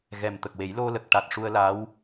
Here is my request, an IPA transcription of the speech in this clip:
ɣ ɛ˨˩ m t̪ ə˨˩ k̚ w e˨˩˦ j l o˧ l ə˨˩ k̚ ʈ a˨˩ t̚ ʂ u˧ ə̯ l a˧˥ w

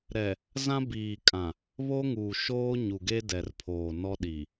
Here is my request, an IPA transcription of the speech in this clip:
ɾ ɛ˨ | z ã˦ b iː˨ kʼ ã˨ | β o˦ ŋ uː˨ ʃ oː˦ ɲ u˨ ɡ e˦ d ɛ˨ r pʰ oː˨ n ɔ˦ ɗ i˨

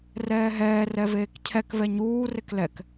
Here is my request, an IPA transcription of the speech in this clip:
r ɛː ɦ ɛː r ɛ v eː k cʰ ɛ k v ɛ ɲ uː r e k l ɛ k

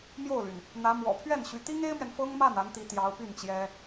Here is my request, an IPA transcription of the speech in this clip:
m j o˥˩ ʊ̯ l y˩ n | n̪ ä˧˥ m w ɔ̰˨˩ pʰ ɥ ɛ˥˩ n ɕ y˧˥ t̪ i˥ ŋ e˥ ɪ̯ m ɥ ɛ˨ n f ɤ˥ ŋ m a˥˩ n a˧˥ n t̪ i˧˥ t̪ j ɑ˧˥ ʊ̯ p y˥˩ n t͡ɕ j ɛ˥

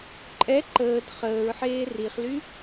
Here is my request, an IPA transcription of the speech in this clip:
ǃʼ ɛ ǃ əː d χ əː ɹ ħ eː r i χ l y

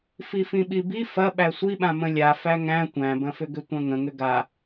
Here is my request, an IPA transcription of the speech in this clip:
f i f ĩ ɓ i b i f ɐ ɓ æ sʷ i ɓ ã m ə̃ lʲ a f æ ŋ æ̃ tʷ æ̃ b ɐ̃ f ʏ ɡ ʏ tʷ ɐ̃ ŋ ə̃ ŋ ʏ ɡ a

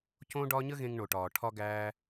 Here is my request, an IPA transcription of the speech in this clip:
c õ˦ ɖ ɒ˦ ɲ ə˦ ɣ ẽ˧ ŋ ɳ o˨ ʈ ɒː˨ ʈʰ ɒ˦ ɡ æː˦

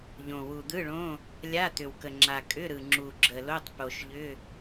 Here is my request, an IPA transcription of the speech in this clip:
ʎ õ˨˩ w u˨˩ d̪ ɯ˧˥˧ ɭ õ˧˥˧ | lʲ a˧˥˧ t̪ ʏ˨˩ w k ə˨˩ ŋ͡ǁ a˨˩ kʼ ʏ˧˥˧ ɾ ɯ˨˩ ŋ͡ǁ u˨˩ ɡ͡ǁ ə˨˩ l o˧˥˧ tˤ p o˨˩ ʃ ʎ ʏ˧˥˧

